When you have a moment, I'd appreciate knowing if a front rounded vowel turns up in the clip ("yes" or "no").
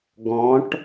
no